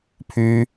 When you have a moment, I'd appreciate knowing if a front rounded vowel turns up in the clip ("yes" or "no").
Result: yes